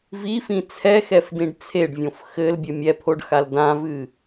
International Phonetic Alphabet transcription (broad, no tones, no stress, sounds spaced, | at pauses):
v i f ĩ t͡sʰ ɛ x ɛ f d ĩ ɖ t͡sʰ e ɖ vʲ õ f x ɘ l bʲ ɘ mʲ ɛ pʰ o ɖ x a l d ã v ɨ